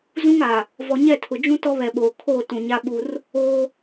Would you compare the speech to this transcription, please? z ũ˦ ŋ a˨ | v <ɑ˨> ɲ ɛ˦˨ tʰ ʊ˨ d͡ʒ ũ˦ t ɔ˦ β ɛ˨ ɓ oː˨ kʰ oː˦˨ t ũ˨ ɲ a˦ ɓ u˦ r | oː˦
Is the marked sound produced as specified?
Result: no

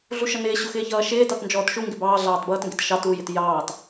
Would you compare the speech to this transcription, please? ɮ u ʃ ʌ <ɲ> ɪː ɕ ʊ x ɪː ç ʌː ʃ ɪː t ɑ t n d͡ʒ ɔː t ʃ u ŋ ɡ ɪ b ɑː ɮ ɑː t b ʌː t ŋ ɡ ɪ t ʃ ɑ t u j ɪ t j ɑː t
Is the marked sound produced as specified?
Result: no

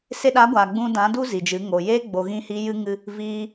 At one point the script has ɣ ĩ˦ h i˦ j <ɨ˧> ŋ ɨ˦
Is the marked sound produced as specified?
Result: no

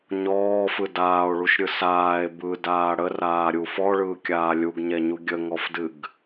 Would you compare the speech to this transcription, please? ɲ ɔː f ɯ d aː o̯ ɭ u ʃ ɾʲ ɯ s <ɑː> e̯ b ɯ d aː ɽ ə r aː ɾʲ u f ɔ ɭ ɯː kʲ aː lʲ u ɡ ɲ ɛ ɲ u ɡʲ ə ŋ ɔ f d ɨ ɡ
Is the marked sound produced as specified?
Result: no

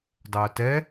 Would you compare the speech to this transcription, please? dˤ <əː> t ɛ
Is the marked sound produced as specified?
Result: yes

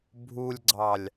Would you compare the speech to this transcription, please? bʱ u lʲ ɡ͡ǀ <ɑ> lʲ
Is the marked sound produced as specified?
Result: yes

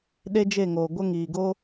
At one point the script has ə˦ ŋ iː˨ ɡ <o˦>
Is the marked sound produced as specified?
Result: yes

